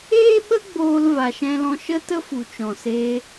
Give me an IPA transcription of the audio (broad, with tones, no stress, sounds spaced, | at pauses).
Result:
eː˦ ɓ ə˦ ɡ͡b oː˧ l v a˨ ʃ ɛ̃˧ l ɔ̃˧ ʃ ə˦ t ə˦ f u˨ t͡ʃ ɔ̃˨ s eː˧